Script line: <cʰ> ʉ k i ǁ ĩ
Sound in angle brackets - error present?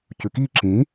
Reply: yes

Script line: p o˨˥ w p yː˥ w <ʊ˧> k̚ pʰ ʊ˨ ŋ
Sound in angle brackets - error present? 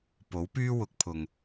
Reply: yes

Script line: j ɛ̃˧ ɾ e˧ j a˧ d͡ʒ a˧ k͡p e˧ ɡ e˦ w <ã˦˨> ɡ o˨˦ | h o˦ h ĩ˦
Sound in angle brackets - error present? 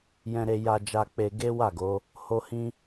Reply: yes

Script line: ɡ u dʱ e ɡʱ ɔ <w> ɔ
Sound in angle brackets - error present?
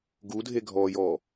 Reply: yes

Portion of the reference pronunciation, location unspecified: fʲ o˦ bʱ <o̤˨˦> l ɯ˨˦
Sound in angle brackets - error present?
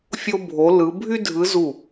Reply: yes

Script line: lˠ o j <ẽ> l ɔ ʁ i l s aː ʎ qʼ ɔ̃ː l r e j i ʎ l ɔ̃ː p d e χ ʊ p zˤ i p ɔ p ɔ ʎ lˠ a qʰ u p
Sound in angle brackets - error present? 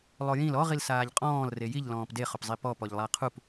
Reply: yes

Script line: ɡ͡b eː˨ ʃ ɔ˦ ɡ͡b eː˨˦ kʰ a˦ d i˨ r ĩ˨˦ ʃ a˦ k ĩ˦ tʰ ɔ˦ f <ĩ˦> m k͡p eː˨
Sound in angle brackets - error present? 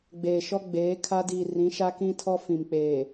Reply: yes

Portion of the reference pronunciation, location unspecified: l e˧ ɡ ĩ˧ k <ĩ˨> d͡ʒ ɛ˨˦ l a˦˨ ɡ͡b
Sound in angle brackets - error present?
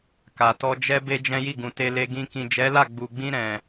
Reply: no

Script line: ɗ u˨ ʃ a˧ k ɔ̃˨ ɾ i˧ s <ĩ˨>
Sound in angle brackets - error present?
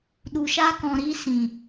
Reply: no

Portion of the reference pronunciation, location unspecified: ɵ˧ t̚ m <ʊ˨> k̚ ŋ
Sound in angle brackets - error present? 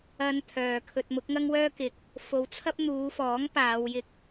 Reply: yes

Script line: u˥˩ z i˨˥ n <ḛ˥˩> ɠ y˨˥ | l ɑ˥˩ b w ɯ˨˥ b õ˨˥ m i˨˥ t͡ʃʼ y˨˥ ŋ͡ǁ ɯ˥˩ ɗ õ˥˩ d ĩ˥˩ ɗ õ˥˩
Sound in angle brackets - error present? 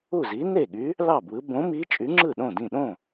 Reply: yes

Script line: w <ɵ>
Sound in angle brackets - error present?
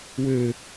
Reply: yes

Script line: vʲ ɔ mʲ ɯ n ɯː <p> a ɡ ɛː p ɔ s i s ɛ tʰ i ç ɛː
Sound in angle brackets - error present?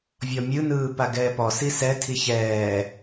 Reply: no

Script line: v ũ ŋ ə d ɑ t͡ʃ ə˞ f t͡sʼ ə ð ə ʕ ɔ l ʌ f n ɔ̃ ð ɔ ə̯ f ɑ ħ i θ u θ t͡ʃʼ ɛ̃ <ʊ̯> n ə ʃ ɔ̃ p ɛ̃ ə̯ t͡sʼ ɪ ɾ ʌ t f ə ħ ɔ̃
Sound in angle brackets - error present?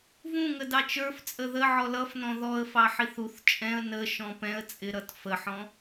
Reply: yes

